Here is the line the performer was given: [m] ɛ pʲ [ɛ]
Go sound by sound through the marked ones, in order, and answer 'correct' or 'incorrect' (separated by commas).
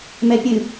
correct, incorrect